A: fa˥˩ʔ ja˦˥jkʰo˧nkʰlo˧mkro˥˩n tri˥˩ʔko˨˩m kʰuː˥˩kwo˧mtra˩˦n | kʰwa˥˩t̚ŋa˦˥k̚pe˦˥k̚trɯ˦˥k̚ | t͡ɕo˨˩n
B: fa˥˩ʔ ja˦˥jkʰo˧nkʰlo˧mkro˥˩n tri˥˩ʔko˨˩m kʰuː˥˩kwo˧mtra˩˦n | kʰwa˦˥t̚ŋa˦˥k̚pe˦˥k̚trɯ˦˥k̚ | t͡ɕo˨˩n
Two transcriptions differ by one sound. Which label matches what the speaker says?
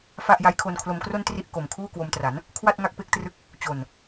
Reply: A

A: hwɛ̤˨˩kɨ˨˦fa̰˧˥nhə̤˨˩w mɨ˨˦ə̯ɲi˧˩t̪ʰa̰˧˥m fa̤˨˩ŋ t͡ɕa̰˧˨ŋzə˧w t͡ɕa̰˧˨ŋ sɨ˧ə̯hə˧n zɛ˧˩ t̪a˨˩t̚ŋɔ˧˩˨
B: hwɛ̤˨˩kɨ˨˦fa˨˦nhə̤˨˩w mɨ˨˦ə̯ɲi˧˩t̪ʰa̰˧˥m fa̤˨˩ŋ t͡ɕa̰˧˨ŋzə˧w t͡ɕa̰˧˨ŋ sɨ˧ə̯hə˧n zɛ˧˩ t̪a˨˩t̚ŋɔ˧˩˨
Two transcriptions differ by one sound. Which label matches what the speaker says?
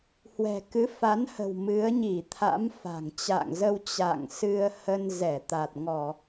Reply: B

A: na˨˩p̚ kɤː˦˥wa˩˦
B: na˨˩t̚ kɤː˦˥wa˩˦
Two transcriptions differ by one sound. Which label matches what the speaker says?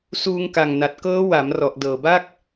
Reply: B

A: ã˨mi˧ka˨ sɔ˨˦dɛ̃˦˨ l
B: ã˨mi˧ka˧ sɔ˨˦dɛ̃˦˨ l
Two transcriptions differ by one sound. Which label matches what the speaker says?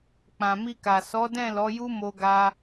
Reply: A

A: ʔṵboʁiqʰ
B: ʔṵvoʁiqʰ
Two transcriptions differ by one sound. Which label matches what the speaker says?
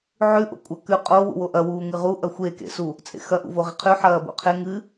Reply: B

